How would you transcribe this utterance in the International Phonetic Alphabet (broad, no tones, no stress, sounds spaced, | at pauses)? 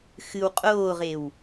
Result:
x ɨ w qʼ oː ʁ e w